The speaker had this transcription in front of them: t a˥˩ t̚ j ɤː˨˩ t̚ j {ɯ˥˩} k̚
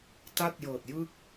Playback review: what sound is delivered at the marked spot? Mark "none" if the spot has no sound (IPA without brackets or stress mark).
ɯ˥˩